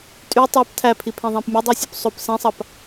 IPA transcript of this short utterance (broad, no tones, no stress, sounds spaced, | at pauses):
tʼ y tˤ ɑ p tʰ æ pʰ i pʰ ẽ ðˤ æ̃ p mʲ o dˤ ɯ sʲ o p sˤ o p s ẽ sˤ ɑ p